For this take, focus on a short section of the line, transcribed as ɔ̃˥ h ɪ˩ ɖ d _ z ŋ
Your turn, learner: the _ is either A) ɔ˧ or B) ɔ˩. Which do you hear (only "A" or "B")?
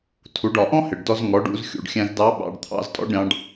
A